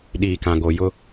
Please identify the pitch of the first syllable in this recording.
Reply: low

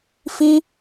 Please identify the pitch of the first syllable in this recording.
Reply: high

